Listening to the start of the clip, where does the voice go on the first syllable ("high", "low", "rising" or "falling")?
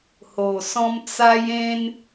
low